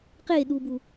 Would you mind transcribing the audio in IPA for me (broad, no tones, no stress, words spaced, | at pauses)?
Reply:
qeɗubu